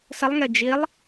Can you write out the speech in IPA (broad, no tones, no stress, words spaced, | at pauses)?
səlˠŋe d͡ʒilˠ